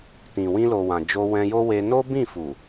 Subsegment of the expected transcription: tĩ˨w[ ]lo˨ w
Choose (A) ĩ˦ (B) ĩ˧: B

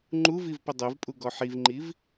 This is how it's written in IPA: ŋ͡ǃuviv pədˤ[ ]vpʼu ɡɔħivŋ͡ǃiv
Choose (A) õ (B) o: B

